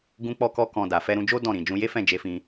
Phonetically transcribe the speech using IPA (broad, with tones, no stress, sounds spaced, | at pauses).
ɡ ũ˦ k͡p ɔ˦ k ɔ˦ k ɔ̃˧ d a˨ f ɛ˧ ɾ ũ˧ d͡ʒ o˦ d ɔ̃˦˨ ɾ ĩ˨ d͡ʒ ũ˧ j e˦ f ɛ̃˦˨ d͡ʒ e˧ f ĩ˧